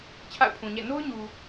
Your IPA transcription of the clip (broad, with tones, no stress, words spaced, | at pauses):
t͡ɕʰa̰˦˨ʊ̯pʰũ˨ɲɛ̰˦˨ no˦ʊ̯ɲu˨